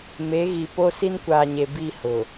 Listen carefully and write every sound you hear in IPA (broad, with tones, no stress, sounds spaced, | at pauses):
m e˨˦ ɣ i˨ p o˦ s i˦ n kʷ aː˨ ɲ e˨ b i˦˨ h ʊ˨